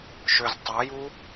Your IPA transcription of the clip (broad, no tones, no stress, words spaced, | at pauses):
ʃøz tˤɑju